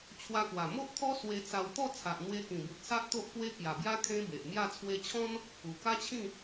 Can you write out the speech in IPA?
t͡ɕʰwa˧kwa˨˩ mo˦ʔt̪ʰɔ˦ swe˧t͡sa˧w t̪ɔ˥˧ t͡sʰa˨ʔn̪we˧kĩ˨˩bu˨t̚ sa˦ʔt̪o˦ʔkwe˦ kja˨˩bja˦ kʰẽ˦be˨ʔmja˥˧ t͡sʰwe˧t͡ɕʰɔ̃˦n | u˨˩ka˦t͡ɕʰĩ˥˧

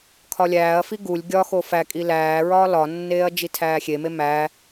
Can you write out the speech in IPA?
kʰɒlʲæːɐ̯fi ɡulʲ ɡʲɒxo fækʼi læːɹɒː lɒnːeːɐ̯ d͡ʒitʰæːxʲeme mæ

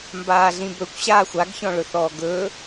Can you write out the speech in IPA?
mbaːɮĩbɵkʷɕaː xʷaɡçɔ̃ɭɵ θɔːɡɵ

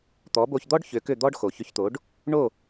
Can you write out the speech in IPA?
t̪ɔ˩˥bo˧çd̪ɔ˥ɖ çʏ˩˥kʏ˥˩d̪ɔ˥ɖ xo˩çʏ˧çt̪o˩˥ɖ | ɳo˥˩

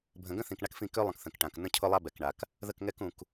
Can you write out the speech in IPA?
bʱə̃˨ɡə̃˦θĩ˨k ɳa˦kfĩ˦˨ kø˦lˠə̃˨k θə̃˨kʈã˨k nə̃˦cʰʊ˦lˠa˦ bɛ˨kɳa˨k | ðə˦˨kŋɛ˦kũ˨k

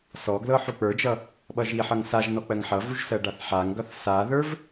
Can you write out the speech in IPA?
sɔɡlɤ ħuk͡pə˞d͡ʒʌ | ɓʌʒiħʌŋ saʒnɔ k͡pɜŋħʌvuʒ sɜɖaθħaŋɡʌθ saðə˞v

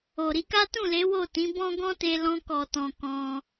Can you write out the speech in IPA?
o˨ ɾi˨˦ka˦ tũ˦˨le˨˦ wo˦˨tĩ˨˦bɔ̃˦ ɡɔ̃˦te˧lɔ̃˧ kɔ˨tɔ̃˨ kɔ̃˧

